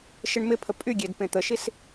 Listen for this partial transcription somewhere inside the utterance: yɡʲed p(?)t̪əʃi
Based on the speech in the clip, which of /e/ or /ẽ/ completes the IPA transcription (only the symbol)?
ẽ